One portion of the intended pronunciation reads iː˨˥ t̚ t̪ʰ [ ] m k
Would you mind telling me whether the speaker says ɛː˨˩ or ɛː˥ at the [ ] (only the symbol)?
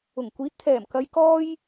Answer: ɛː˨˩